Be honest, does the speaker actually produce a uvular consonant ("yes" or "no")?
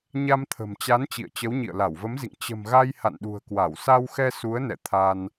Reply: no